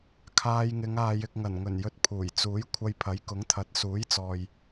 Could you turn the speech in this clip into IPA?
kʰ aː˧ j ŋ ɪ˨˧ ŋ aː˨ j ɪ˨ k̚ ŋ ɐ˨˩ n ŋ ɵ˨˩ n j ɵ˧ t̚ pʰ uː˨˩ j t͡s uː˨˥ j kʷʰ ɐ˧ j pʰ ɐ˨˥ j k ʊ˨˥ ŋ t̪ʰ ɐ˨˥ t̚ s uː˨˥ j t͡s ɔː˨ j

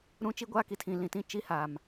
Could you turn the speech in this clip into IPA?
ɾ ũ˦ t͡ʃ i˦ ɡʷ aː˦ k i˨ tʰ ĩ˨ l ĩ˨ t ĩ˦ t͡ʃ i˦ h aː˨ m

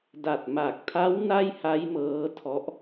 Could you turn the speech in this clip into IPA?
d a˨˩ t̚ m a˨˩ k̚ tʰ a˦˥ w n a˥˩ j h a˦˥ j m ɤː˦˥ tʰ ɔ˦˥ ʔ

